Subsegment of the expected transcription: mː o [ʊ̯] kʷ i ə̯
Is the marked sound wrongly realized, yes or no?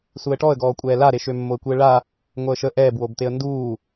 yes